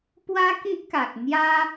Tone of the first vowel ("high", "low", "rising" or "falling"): high